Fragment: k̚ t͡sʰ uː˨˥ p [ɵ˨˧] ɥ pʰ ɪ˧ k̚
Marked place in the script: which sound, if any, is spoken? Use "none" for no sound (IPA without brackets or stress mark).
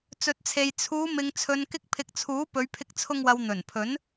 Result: ɵ˨˧